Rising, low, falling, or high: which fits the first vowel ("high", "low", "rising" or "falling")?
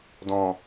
low